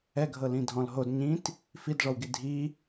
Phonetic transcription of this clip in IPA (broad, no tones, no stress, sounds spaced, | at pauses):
ɛ ɡʱ ɤ l ĩ dʱ ɔ̃ l ɦ o d ɲ ĩ t | f i d ʐ ɔ w ɡ i dʱ i